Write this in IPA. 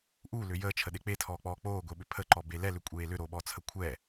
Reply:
ʔulʏ jəːt͡ʃʰəɗe k͡petʰɔːk͡pɔː k͡poːɡʷeɓʏ pʰəǃɔbe lɛlʏkʷʼeː lʏɾoːɓɔt͡sʰə kʷʰɛ

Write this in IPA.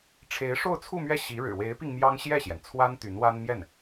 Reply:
ʈ͡ʂʰe˧˥ɪ̯ʂo˥˧ʊ̯t͡sʰu˥˧mɥɛ˥˩ ɕi˧˥ɻɻ̩˨˩ we˧˥ɪ̯pi˧ŋ mjɑ˥ŋ ɕjɛ˥˩ɕjɛ˩nt͡sʰwa˥n t̪y˧˥nwa˥n mjɛ˥˩n

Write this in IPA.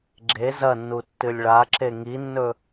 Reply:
ɡ͡ǁe zɐnːutːɨlʲ ɭaǁe ŋinːɵ

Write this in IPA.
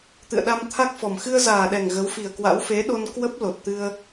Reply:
t̪ɨ̰˧˨ə̯ɗa˧mt̪ʰa˦˥k̚fɔ˨˩m xɨ˧ə̯zaː˨˩ɗɛ˨˩ŋ ɣə˨˦wfi˨˩ə̯kwa̰˧˥w fe˨˦ɗo˧n kwə˦˥p̚ lo˨˩t̚t̪ɨ˧ə̯

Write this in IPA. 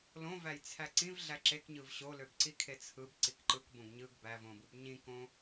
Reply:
lõvæj t͡sʰæǀĩv ɮæǁekɲɯv ɕoløbǀikʰe t͡sʰɯb ǀikǃɯkbõɡ ɲɯɡ bævõbɯb ɲĩkõ

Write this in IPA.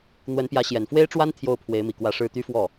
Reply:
n̪wə˧˥npjä˧˥ ɕjɛ˨˩nfwe˥ɪ̯ʈ͡ʂwa˥n t̪ʰjo˥˩ʊ̯ pʰwe˧˥ɪ̯mi˨˩kwä˥˧ ʂɻ̩˥˩t̪y˥fwɔ˥˩

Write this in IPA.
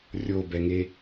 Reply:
rʲobɛŋe

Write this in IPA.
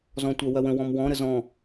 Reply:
zɔ̃tʷɜwɐwə̃ wɔ̃mwɔ̃ ɾəzɔ̃

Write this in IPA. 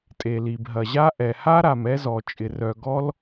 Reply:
tʼe˩li˩bɦɐ˩ʑa˥ ʔɛ˩ha˥ɾa˩m ɛ˥zɔ˩ t͡ʃʼɪ˩rœ˩ ɡɔ˥l

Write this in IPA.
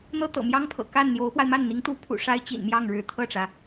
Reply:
n̪ɤ˥t̪ɤ̰˨˩mjɑ˥ŋpʰɤ̰˨˩ ka˥˩nn̪jo˧˥ʊ̯pwa˧ɪ̯ ma˥˩nn̪i˧˥ŋ t̪u˧˥pʰṵ˨˩ ʂa˥ɪ̯t͡ɕḭ˨˩nmjɑ˥˩ŋɻɻ̩˧˥ t̪ʰɤ˥˩ʈ͡ʂä˩

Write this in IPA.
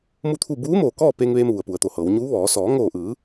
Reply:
mu˥˨t̪ʰu˥˨ buː˧˥moː˧˩ kɔː˥˨peː˧ŋʋeː˧m ʋu˩ə̯pu˩˧ə̯t̪o˩hɤː˩˧w ɲuː˧˥ʋɔː˩˧ sɔː˩˧ŋoː˧˩ʔɯː˩˧

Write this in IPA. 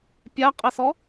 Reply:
pʲaqʼɛsɔ

